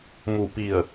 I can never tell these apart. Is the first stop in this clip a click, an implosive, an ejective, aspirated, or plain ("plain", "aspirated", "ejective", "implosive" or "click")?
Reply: plain